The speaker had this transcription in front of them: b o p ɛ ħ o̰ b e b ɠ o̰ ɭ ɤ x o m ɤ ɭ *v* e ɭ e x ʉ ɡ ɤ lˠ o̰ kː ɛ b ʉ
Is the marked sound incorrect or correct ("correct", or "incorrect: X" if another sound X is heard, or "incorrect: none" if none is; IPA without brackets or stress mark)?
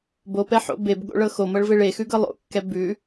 correct